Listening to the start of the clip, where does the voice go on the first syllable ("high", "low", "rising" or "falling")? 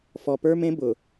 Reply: low